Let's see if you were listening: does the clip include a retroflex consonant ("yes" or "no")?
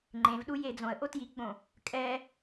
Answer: no